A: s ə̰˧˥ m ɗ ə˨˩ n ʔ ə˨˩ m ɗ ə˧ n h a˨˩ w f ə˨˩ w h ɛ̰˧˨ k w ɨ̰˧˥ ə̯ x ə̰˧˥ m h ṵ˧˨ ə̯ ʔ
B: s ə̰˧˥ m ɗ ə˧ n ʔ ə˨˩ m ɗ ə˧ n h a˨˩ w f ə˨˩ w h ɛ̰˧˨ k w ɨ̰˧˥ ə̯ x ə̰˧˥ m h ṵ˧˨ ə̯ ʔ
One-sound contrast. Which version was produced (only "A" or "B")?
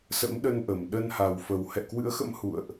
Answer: B